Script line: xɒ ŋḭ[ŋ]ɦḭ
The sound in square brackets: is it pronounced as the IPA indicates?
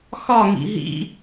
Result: no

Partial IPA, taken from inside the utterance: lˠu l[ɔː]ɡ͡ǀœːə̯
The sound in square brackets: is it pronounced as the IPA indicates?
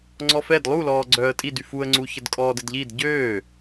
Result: yes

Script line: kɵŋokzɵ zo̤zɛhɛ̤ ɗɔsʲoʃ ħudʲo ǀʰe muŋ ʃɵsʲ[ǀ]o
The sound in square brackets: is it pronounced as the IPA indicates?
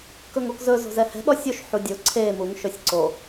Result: yes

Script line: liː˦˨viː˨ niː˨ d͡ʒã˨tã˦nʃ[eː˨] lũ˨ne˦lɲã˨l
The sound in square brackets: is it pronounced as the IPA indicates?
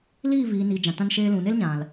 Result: no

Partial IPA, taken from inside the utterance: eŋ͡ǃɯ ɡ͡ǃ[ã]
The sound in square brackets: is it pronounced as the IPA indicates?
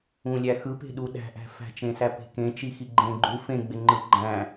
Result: no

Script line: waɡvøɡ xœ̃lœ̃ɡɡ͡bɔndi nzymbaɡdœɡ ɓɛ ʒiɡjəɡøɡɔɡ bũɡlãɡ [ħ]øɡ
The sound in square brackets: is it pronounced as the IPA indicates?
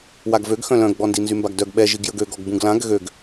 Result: no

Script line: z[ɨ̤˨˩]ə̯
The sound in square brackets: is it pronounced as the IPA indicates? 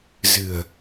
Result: yes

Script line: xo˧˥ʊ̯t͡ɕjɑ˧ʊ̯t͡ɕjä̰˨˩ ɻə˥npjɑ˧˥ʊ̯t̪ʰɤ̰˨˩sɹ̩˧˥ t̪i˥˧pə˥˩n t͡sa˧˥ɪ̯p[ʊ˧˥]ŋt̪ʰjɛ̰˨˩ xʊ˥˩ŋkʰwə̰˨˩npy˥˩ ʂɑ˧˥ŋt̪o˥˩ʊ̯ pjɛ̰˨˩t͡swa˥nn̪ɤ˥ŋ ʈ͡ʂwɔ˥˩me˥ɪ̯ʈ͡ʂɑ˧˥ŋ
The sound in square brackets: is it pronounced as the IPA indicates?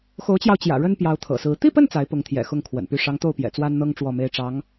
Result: yes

